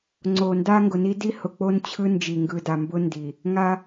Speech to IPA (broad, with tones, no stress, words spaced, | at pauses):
ŋ͡ǀo˨ nda˦ŋɡʊ˨ni˦ di˦hʊ˨ k͡po˦nt͡ɕʰɯ˦nd͡ʒi˨ ŋɡɯ˨da˨mbʊ˦ndi˨ | ŋa˦